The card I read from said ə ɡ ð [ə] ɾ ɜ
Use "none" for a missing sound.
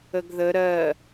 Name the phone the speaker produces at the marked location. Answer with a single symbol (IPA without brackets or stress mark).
ə